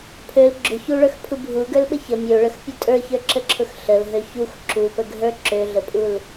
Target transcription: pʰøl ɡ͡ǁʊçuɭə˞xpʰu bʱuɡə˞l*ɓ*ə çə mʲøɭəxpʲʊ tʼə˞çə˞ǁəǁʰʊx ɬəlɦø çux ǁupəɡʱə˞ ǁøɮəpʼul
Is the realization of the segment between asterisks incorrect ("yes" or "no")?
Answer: no